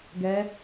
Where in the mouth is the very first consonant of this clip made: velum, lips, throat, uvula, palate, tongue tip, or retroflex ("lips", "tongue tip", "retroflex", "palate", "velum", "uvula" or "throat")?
velum